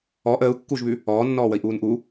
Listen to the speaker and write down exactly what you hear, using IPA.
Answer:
ɔ ʔ əː u̯ kː uː ʒ β ʉ | ɔː nː ɔː w ə i̯ ʔ uː n ʔ u

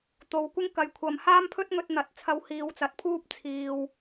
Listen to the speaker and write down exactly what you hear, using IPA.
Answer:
t̪ o˨ w kʷ ɪ˥ ŋ k ɐ˨˧ j kʷʰ ɐ˨ m h aː˥ m pʰ ɵ˥ t̚ ŋ ɵ˧ t̚ n̪ ɐ˨˥ t̚ t͡sʰ ɐ˧ w h iː˨˧ w t͡s ɐ˨ t̚ pʰ uː˥ p̚ t͡sʰ iː˨ w

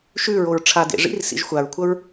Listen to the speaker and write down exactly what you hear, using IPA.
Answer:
ʃ ʉ ɹ o ɹ ʈ͡ʂʰ a d ḛ ʐ ḭ r s ḭ ʒ xʷ a ɹ kʷʰ ɐ ɹ

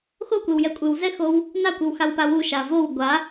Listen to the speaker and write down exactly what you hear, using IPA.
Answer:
x o kʷ e w j ɛ kʷʼ ɨ w z ɛ x o w | n a kʷ ɨ w x a w p a w u ʃ a v o w ɡʷ a

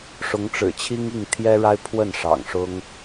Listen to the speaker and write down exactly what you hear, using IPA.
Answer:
ʂ ʊ˧˥ ŋ ʈ͡ʂ ɻ̩˨˩ t͡ɕʰ i˥ ŋ i˥˩ ŋ t̪ʰ j ɛ˥ ɻ a˥ ɪ̯ pʰ w ə˥˩ n ʂ ɑ̰˨˩ ŋ ʂ ʊ˥ ŋ

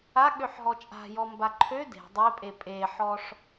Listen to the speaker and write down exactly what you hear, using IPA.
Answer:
a ɠ ø ħ ɦ ɔ t͡ʃʼ a̤ j ɔ m b a ǃʰ ø d e̤ dˤ e pʼ e pʼ e ħ ɔ ʂ

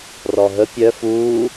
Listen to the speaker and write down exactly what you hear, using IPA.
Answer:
r ɔ ɦ ə pʲ œ f uː

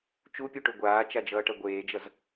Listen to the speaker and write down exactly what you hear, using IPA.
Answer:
t͡ʃ u pʲ u ʈ o ɡʷ aː t͡ʃ a d͡ʒ ʌː ʈ ɐ ɡʷ eː d͡ʒ ʌ z

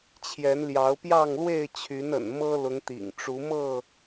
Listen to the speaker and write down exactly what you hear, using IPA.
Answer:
t͡ɕʰ j ɛ˨˦ n l j ɑ˨˦ ʊ̯ p j ɑ˥˨ ŋ l w e˥˨ ɪ̯ t͡ɕʰ y˨˦ n ə̰˨˩ n m ɤ˦ l ʊ˨˦ ŋ t̪ ḭ˨˩ ŋ ʈ͡ʂ u˨˦ m ɤ˥˨

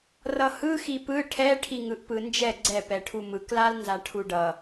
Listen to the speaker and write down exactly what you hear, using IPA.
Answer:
r ʌ h ɯ x i p ɯ ʈʰ ɛ ʈʰ i ŋ ɯ ʔ p ɯ n d͡ʒ ɛ ɡ͡ǀ ɛ p ɛ ʈʰ u m ɯ k l a l n z a ʈʰ u ɖ ʌ

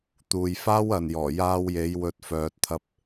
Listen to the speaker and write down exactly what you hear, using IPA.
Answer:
t̪ uː˨ j f aː˥ w ɐ˨ n j ɔː˨˩ j aː˧ w j e˨˧ j w ɵ˧ t̚ f œː˧ t̚ t̪ʰ ɐ˥ p̚

